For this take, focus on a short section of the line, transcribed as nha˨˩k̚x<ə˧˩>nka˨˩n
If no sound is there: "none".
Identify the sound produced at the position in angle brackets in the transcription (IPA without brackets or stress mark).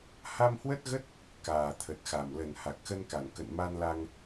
ə˧